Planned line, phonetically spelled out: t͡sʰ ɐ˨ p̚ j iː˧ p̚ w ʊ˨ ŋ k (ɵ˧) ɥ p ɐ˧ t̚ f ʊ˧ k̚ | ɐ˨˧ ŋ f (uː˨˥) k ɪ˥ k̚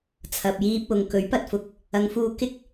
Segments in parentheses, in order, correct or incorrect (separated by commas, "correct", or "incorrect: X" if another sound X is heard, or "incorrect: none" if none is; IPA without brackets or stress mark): incorrect: ɵ˨˥, incorrect: uː˧